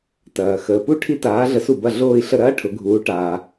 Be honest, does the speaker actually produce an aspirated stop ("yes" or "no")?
yes